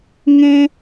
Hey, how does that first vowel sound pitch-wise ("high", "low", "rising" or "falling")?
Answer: high